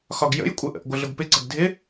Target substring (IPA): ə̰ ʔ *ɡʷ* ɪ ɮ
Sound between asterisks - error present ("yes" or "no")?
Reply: no